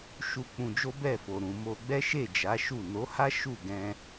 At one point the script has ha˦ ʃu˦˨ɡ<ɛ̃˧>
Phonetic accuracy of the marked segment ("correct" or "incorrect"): correct